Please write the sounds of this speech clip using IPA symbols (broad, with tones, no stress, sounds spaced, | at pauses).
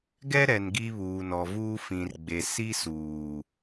ɡ ɛ˦ ɾ ɛ˨ n ɡ i˦ β uː˨ n ɔ˨ v uː˦ f ĩ˨ r ɡ͡b e˨ s i˦ s uː˨